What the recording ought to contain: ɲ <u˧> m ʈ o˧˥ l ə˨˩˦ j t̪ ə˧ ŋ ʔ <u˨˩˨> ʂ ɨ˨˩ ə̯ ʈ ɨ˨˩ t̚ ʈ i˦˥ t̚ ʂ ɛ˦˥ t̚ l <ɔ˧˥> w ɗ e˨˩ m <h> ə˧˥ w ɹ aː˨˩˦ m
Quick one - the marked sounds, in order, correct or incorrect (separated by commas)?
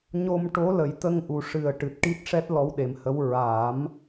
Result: incorrect, incorrect, correct, correct